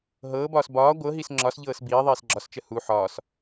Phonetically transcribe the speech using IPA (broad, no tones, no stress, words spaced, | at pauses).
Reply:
ɦɤːbɒːs bɒː ɡʷɤɦis ŋ͡ǁɒsʎɤːs biːðˤiːs ɡ͡ǁɒst͡ʃə hu ħɒːs